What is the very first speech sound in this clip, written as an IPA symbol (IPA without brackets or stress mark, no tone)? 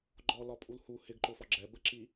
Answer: ɡ͡ǃ